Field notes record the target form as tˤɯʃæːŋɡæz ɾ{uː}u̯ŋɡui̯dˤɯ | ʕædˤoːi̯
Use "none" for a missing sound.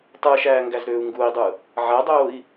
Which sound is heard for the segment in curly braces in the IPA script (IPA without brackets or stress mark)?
øː